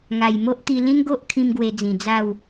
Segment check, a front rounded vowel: absent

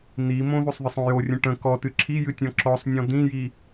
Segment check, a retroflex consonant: present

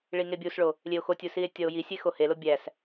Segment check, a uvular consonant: absent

